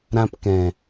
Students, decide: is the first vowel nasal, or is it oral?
nasal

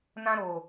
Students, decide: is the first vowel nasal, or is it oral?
nasal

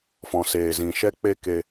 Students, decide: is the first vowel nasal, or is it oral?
nasal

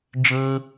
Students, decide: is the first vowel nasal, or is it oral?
nasal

